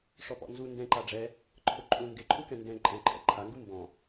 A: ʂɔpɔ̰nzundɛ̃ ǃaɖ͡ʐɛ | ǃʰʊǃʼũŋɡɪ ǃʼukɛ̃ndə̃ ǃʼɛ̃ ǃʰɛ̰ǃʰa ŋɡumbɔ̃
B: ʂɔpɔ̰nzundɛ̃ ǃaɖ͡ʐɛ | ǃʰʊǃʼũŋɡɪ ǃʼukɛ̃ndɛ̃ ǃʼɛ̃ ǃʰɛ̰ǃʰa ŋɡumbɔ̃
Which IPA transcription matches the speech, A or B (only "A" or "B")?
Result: B